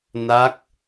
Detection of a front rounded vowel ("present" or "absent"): absent